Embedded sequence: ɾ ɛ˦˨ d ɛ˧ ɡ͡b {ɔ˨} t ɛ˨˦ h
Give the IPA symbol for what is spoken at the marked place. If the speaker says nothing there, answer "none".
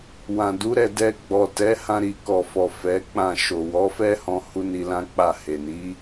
ɔ˨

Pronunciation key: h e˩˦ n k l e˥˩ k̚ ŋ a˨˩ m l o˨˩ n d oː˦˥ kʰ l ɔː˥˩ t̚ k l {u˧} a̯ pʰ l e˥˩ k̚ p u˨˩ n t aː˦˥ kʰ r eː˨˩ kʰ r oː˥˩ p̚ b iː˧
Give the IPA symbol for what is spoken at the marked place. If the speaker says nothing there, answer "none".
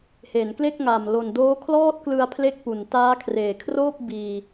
ɯ˧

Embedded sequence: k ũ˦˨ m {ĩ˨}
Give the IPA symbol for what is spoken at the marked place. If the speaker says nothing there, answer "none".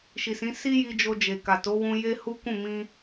ĩ˧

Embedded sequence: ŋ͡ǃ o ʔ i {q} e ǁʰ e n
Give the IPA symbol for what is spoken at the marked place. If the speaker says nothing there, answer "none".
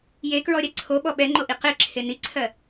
q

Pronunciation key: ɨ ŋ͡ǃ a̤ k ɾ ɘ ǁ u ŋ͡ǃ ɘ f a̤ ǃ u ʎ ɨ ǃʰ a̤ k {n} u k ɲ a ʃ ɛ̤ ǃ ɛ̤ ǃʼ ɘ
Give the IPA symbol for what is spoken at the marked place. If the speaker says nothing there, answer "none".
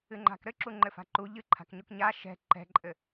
ɲ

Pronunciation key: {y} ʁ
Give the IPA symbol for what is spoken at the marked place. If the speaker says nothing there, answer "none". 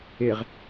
e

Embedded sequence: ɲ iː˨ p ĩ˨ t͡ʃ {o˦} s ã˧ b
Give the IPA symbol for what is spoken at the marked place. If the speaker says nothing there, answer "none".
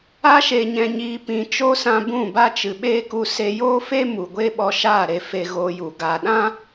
o˦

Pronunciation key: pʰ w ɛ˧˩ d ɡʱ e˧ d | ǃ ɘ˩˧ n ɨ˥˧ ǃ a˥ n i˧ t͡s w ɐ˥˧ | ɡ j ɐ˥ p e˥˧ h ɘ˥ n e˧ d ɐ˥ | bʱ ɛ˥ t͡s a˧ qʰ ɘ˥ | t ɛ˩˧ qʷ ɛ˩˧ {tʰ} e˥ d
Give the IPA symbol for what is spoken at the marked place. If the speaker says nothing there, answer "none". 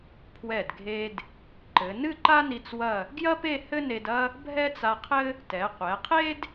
qʰ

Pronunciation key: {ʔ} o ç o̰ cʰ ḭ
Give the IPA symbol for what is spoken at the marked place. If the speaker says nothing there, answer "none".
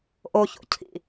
ʔ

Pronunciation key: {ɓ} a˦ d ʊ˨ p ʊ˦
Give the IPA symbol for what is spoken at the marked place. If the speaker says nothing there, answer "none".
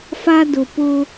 f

